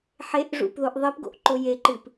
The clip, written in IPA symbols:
ħ e ʔ ʐ ṵ p ð o ʔ ðˤ i p ɡ o̰ ʔ ǃ o j e ǃ ɨ p

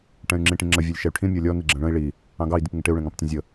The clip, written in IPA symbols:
ʈ ɛ̃ y̯ ŋ͡ǁ ĩ ʈ ĩ ŋ͡ǁ ə vʲ ə˞ lʲ ʃ ɛ y̯ ʈʰ ĩ mʲ ɔ lʲ ɔ n i ɡ͡ǁ ə̃ ɭ ə̃ i̯ ɭ i | ɑ̃ ɡ ɑ i̯ d i p ŋ ɪ ʈ ɪ u̯ ɭ ɛ̃ ŋ ɑ̃ p tʲ ə̃ zʲ ə

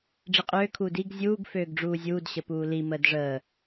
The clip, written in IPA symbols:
ɖ͡ʐ i qʼ øː kʰ uː d i ɡ zʲ uː ɡ f øː ɡ ɖ͡ʐ uː zʲ uː d ɕ ə p uː l i m əː d ʐ əː

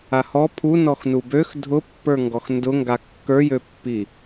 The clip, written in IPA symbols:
a h ɔ pʰ u n ɔ x n u b ø x dʱ ʊ pː ə˞ ŋ ɡ ɔ x n d ʊ ŋ ɡ a kː ə˞ j ø pː i

